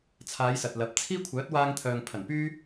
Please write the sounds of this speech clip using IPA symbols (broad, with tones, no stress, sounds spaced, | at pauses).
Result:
t͡sʰ aː˨˧ j s ɐ˨ t̚ l ɐ˨ p̚ t͡sʰ iː˥ kʷʰ œː˨˥ t̚ w aː˧ ŋ t̪ʰ œː˨ ŋ pʰ ɐ˨˩ n p yː˥